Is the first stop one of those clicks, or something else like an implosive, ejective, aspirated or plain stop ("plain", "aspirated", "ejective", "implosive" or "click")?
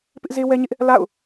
plain